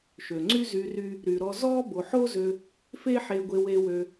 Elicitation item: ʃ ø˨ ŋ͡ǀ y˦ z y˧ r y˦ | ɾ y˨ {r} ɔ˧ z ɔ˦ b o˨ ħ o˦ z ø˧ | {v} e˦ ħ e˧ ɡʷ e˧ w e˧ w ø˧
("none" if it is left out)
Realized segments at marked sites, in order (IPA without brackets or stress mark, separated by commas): ɾ, f